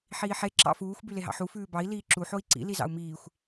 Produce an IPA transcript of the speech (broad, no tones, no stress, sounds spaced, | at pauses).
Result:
ħ iː ħ e ǁ ɑ̰ f uː xʷ b y l e ɦ ɑ̰ ħ u f ʉː b ɑ i̯ l iː ǁ u ħ o i̯ ǀ ḭ l i z ɑ̰ u̯ m iː xʷ